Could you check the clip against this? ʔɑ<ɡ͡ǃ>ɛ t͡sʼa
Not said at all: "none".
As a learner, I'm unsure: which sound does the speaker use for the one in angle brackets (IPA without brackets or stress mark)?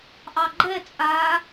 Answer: ɡ͡ǃ